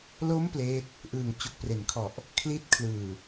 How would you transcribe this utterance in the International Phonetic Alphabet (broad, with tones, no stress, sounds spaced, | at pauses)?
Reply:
l o˦˥ m p l eː˦˥ t̚ | ʔ ɯː˨˩ ŋ t͡ɕ o˨˩ k̚ p r e˩˦ n kʰ ɔ˨˩ ʔ | kʰ l iː˦˥ t̚ kʰ l ɯː˨˩